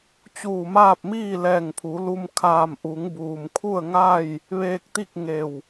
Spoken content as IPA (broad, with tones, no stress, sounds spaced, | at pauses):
t͡ɕ uː˧˩ m aː˥˨ p̚ m iː˥˨ l ɛː˧˩ ŋ pʰ u˩˧ l u˧ m kʰ aː˧˩ m ʔ u˩˧ ŋ b uː˩ m kʰ u˥˨ ə̯ ŋ a˥˨ j | ʋ eː˧ k̚ t̪ i˥˨ k̚ ŋ e˧˩ w